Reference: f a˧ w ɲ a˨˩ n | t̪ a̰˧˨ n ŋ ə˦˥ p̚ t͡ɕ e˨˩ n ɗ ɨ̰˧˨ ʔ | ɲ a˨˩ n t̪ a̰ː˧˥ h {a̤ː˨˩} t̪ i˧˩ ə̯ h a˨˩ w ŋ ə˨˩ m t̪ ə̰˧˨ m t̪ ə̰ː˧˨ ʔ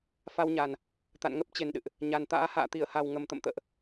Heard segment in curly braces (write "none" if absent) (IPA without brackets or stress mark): a̰ː˧˨